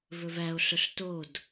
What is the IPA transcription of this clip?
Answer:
v ɵ v æ o̯ ɬ ɵ ɬ t o d

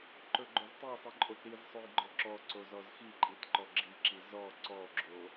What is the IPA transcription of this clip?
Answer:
ǃ ɵ ɡ͡ǃ ɵ z tˤ i sˤ i ǃʼ o t ɾ i z sˤ ɵ j ɡ͡ǃ ɔ ǁ ɔ ǀ o z ɔ z x i ǃʼ i t ǃ ɔ ɡ͡ǁ i ǁ i z ɔ ǀ ɔ ɡ͡ǁ o

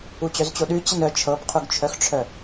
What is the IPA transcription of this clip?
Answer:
u t͡ɕ œ z t͡ɕ o ɗ ʉ t͡ɕ ə n œ t͡ʃʰ ɤ p qʰ u ɡ t͡ʃʰ œ x ʈ͡ʂʰ œ

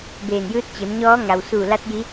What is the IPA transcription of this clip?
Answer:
b eː˧˩ n j ɯː˧˥ t̚ t͡ɕ e˩˧ m ɲ ɔː˧˥ ŋ a˩ w s uː˧˩ l a˧˥ t̚ j i˧˥

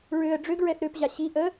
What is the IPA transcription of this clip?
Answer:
ɹ ø ə̯ ɖ͡ʐ ø ɡ ɹ ɛ θ ɾ ø p ʑ a ɕ i ʔ ə

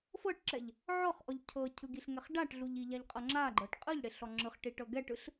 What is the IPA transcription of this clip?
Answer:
f ɤ ʈ ǁ ɛ ʎ | ʕ ɔ χ ʔ ɔ ʎ cʰ ɤ cʰ ɯ ɡ i ɬ ŋ ɛ χ ɖ a ʈ ɮ u ʎ i ʎ a ʎ qʼ ɤ ŋ͡ǁ a ɡ͡ǃ ɤ ʈ qʼ ɯ ʎ ɽ e ɬ ɔ ŋ͡ǁ ɯ χ ʈ i ʈ ɤ ɡ ɛ ʈ ɯ ɬ

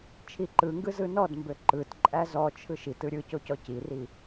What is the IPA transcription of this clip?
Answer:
t͡ʃʰ i ǃ ɯ ŋ ɡ ɯ z ɯ n ɔ d m b ø ǃ ɯ t ǃʼ æ z ɔ t͡ʃʰ ɯ ʃ i t ɯ ɾʲ ɯ c o c ɔ c i r i

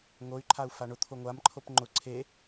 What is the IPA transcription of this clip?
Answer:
ŋ o y̯ ǃʰ a u̯ f a ɳ ʊ t̪ʰ o ŋʷ a m ǃʰ o p ŋ͡ǃ ʊ ǀʰ e

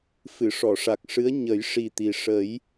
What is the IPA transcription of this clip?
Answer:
f ɨ˨˩˨ ʂ ɔ˨˩˨ ʂ a˨˩ k̚ ʂ ɨ˧˥ ə̯ ɲ ə˨˩˦ j ʂ i˨˩ t̪ i˨˩ ʂ ə˨˩˦ j

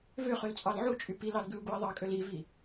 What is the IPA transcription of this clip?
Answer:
v ø χ ø l t͡sʼ ɑ l ʕ u t͡ʃʼ y p i l ɑ l ɡ ʉ u̯ ɡ u i̯ ðˤ ɑ kʼ ø l i v i

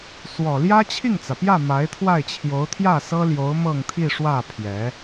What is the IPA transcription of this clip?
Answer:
s w ɔ˨˩ l j ä˥ t͡ɕʰ i˥˩ ŋ t͡s ä˩ p j ä˥˩ m a˧˥ ɪ̯ t̪ʰ w a˥˩ ɪ̯ t͡ɕʰ j o˧˥ ʊ̯ t̪ʰ j ä˥˩ s ɤ˥ l j o˧˥ ʊ̯ m ɤ˥˧ ŋ t̪ʰ i˥˧ ʂ w ä˥˩ pʰ j ɛ˧˥

